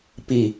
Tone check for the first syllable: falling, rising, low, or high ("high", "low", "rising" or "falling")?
falling